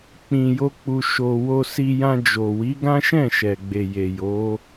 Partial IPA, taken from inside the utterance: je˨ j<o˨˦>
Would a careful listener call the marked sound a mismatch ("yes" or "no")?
no